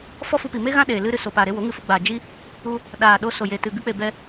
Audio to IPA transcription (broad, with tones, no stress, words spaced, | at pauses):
fɔ˦fu˧pi˨ me˦ɣã˦ɗeː˨ lɨ˦ɾɨ˧ so˨ paː˨ɾe˧ wo˨˦ŋɨ˧fu˧ ɡ͡baː˨ d͡ʒi˦ | u˦ | ɗaː˨ ɗo˧ so˨je˨tɨ˨ ɡɨ˧k͡pe˨ bɛ˧